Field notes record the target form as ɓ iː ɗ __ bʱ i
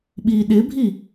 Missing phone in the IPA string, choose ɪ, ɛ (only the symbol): ɪ